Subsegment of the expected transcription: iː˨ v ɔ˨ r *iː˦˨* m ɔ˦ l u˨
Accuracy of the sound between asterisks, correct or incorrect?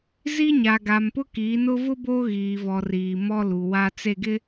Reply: incorrect